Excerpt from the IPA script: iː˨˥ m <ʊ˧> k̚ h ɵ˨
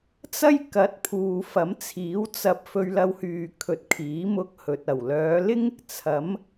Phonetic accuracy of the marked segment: correct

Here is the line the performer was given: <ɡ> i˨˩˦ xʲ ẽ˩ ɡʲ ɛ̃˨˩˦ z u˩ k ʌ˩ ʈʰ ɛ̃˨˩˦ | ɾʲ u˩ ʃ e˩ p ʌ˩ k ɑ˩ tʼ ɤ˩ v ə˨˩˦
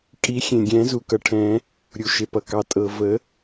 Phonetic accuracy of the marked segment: incorrect: kʼ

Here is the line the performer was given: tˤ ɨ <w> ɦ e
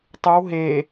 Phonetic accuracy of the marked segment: correct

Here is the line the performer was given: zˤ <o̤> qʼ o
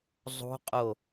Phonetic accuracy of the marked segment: correct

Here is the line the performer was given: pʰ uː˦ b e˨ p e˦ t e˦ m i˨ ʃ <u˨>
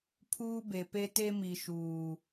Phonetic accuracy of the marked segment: incorrect: uː˨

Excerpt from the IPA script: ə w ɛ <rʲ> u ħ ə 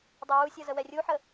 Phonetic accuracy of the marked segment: correct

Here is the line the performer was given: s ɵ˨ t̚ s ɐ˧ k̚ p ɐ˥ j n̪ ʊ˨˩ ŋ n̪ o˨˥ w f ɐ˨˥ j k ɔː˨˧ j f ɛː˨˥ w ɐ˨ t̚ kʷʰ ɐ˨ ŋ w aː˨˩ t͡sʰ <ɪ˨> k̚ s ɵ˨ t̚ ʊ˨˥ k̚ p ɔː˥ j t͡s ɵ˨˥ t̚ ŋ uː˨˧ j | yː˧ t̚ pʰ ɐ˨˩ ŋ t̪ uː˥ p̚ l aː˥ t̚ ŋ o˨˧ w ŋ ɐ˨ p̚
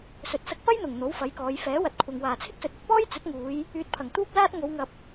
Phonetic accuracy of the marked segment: incorrect: ɪ˥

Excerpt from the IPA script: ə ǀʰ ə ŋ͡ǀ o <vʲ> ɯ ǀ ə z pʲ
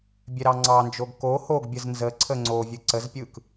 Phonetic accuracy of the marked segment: correct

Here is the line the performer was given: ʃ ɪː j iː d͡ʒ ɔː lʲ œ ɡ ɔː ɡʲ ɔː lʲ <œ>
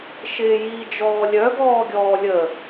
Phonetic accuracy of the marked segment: incorrect: ə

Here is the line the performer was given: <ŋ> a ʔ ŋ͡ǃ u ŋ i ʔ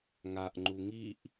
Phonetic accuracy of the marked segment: correct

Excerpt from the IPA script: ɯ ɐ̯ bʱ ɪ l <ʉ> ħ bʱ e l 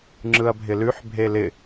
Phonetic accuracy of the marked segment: correct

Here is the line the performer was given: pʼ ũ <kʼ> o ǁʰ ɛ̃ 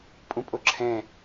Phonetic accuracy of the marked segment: incorrect: pʼ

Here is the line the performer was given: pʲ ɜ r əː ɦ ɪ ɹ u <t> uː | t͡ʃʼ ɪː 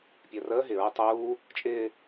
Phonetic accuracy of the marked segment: incorrect: tˤ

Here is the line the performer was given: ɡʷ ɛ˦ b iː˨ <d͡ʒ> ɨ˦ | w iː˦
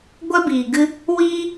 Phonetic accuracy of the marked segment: incorrect: ɡ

